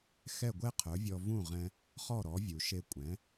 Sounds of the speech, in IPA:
xɛ˥˩ɡʷɛ˥qʰœ˩˥vʲɔ˧ vũ˥˩ʁɛ̃˧ | χɔ˥˩ɾɔ˩˥vʲu˩ʃe˧ kʷʼɛ̃˩˥

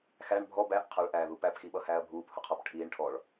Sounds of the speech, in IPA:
xæɳ bʱɔ bæʔ qʰʌɭʔæːðu pæpxiɓʌhæːɐ̯ bʱuːphʊqʰɔp ʈʰiːɳ ʈʰɔɭ

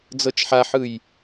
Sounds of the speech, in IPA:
d͡zɤt͡ʃħaħɯj

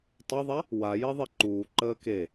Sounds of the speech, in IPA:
tˤɘðˤa | wa jeðˤeǃuːǃəː ke

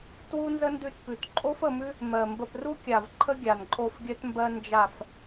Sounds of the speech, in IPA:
twu˥nzə˥ndʉ˦˨tpʉ˨˩t ǃʼo˥fə˦˨mʉ˥ | mɜ˨˩mbə˦˨p ru˥kʲa˨˩v ǃʰə˥ɡʲa˨˩nǃʼo˦˨f ɡʲœ˥tmbɜ˥ nd͡ʒa˦˨f

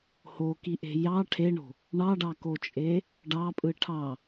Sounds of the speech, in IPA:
hokiʔe̤ jɑ ʈʰeɳo̤ | ɳɑɖɑkot͡ʃʼe | ɖɑpʼɯ ʈʰɑ

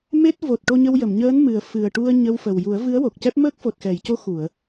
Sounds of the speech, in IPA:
me˦˥t̚ vo˨˩t̚ ʈo˧ɲə˧wjə˨˩˨mɲəː˧˥n mɨ˨˩ə̯ fɨ˨˩ə̯ʈu˧ə̯ ɲə˧wfə˨˩w ju˨˩˦ə̯vɨ˧˥ə̯wo˨˩k̚cɛ˦˥p̚ məː˦˥k̚fo˨˩t̚xɛ˨˩˨jco˧˥ xu˨˩˨ə̯

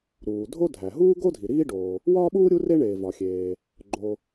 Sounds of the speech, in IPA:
ɾuː˩dʱo˥dʱæ˩ ɦuː˥ɡo˥dʱi˩ ɾiː˥ɖoː˩ | wɒː˥ɓuː˥ ɾʲu˥ re˥ɳeː˩ vɒ˩xʲeː˩ | ɡ͡ǃo˩

